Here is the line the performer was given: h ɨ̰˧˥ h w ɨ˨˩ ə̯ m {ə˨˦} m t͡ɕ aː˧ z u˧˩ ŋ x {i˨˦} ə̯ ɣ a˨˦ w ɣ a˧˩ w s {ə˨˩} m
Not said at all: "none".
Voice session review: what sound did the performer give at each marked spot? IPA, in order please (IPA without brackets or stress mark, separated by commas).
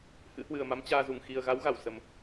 a˨˦, i˨˩, ə˨˩